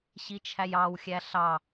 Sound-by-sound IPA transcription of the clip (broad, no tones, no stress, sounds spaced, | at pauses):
ɕ i t͡ʃʰ æ j ɑ w xʲ æ ɬ ɑ